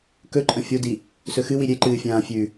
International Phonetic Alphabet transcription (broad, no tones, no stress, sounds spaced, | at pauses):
k ɵ ǃʼ ɐ̃ fʲ o d i | s ɵ x ɨ w i ɾʲ e ǃ ɨː fʲ ãː fʲ ʉ